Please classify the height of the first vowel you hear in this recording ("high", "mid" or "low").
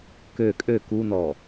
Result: mid